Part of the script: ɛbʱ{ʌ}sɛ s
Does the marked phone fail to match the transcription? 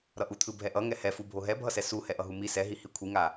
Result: no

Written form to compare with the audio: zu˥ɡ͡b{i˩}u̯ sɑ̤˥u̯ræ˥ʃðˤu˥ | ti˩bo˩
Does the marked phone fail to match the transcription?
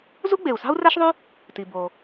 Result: yes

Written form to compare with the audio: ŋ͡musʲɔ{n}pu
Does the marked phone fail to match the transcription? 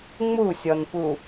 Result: no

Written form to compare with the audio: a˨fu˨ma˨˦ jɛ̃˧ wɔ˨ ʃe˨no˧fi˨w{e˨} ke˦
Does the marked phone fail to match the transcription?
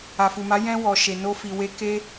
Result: yes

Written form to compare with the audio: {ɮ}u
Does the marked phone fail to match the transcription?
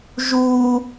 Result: yes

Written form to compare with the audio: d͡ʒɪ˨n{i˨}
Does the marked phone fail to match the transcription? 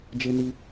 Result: no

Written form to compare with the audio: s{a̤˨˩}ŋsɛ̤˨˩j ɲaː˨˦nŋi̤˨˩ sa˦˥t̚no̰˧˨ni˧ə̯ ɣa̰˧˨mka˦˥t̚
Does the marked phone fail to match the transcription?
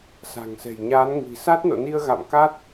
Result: no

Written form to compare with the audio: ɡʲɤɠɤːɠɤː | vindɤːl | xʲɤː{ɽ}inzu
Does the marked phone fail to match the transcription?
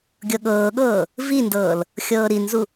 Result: yes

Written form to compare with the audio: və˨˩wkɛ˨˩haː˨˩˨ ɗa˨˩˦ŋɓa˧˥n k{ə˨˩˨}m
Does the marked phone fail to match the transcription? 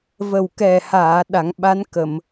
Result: no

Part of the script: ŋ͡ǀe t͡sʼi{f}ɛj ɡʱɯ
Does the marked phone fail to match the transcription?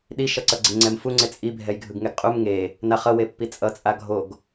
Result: yes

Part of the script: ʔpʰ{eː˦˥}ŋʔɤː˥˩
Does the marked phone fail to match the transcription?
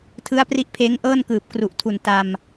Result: no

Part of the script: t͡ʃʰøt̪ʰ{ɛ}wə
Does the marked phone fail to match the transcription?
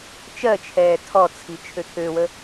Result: yes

